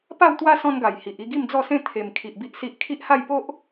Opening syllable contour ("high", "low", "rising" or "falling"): falling